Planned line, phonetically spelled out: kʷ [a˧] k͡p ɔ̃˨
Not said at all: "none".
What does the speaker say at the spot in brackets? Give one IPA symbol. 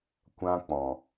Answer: ã˧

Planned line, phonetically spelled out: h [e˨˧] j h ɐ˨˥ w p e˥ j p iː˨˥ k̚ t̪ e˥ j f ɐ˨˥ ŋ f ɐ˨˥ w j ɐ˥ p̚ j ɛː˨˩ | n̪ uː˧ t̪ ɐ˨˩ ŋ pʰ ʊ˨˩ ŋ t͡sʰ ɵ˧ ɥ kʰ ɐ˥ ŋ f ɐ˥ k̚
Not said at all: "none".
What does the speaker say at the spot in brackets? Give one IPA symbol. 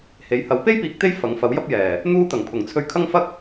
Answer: e˨˧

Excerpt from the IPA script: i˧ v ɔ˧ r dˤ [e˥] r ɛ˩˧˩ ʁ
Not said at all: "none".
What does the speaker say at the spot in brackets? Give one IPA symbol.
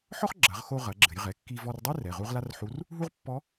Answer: e˥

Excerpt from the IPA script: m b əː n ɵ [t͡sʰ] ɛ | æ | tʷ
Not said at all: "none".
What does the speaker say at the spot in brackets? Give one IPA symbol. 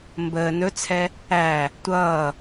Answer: t͡sʰ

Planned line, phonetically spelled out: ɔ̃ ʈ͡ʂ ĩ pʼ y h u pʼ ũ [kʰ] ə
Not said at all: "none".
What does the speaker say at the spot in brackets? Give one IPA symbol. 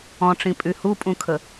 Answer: kʰ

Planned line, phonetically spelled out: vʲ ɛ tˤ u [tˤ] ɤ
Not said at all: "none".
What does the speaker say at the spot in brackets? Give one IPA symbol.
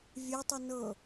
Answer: n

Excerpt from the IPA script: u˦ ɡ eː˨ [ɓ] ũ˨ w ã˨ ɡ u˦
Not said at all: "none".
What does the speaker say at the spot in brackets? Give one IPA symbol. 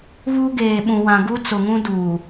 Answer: ɓ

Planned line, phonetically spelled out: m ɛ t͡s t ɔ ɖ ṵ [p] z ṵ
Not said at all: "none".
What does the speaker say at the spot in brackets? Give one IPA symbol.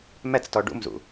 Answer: m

